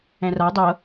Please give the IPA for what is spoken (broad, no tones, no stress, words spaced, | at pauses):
ɛ̃ra dˤɤ